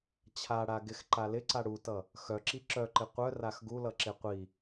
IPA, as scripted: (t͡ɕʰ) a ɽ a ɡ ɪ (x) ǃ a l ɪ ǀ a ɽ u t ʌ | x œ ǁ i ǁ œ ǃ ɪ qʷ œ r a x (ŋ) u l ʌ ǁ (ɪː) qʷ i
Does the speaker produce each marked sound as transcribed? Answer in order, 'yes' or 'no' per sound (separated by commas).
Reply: yes, yes, no, no